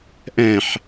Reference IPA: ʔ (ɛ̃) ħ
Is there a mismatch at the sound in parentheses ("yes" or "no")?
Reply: no